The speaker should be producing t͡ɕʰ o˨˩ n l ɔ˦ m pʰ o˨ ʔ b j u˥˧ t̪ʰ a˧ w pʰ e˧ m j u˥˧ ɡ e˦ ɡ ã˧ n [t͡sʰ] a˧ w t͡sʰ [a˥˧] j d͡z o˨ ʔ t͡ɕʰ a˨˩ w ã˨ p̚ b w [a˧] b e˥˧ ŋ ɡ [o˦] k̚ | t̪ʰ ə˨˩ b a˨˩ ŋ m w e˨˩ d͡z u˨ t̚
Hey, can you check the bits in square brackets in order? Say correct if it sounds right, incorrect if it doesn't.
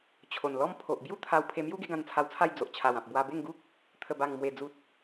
correct, correct, correct, incorrect: u˦

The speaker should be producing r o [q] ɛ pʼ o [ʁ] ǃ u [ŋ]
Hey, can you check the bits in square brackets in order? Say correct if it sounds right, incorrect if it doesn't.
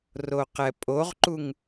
correct, correct, correct

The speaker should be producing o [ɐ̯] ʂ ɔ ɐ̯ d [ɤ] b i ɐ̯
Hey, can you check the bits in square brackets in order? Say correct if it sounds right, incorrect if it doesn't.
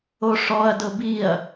incorrect: none, correct

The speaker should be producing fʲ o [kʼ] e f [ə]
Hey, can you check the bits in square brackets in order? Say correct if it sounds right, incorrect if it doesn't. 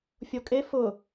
correct, incorrect: ʊ

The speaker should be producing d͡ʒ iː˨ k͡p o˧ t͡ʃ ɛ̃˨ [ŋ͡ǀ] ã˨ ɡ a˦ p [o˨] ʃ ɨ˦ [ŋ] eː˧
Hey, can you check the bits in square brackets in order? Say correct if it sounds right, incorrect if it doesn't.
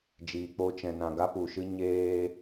incorrect: n, incorrect: u˨, incorrect: ɲ

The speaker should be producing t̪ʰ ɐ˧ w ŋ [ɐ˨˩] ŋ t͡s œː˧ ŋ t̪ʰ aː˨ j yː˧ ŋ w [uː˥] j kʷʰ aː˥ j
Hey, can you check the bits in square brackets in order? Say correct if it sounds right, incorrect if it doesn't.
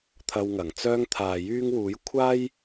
correct, incorrect: uː˨˥

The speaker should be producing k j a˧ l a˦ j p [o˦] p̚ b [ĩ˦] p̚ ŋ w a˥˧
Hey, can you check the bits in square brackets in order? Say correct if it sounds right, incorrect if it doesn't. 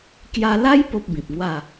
correct, incorrect: ĩ˨

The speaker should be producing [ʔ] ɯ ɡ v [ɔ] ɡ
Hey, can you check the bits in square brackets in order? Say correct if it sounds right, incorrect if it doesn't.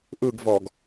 correct, correct

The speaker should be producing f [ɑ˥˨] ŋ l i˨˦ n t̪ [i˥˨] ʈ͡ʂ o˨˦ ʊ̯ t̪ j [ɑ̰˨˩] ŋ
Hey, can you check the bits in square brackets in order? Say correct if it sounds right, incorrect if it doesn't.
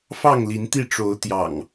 correct, correct, correct

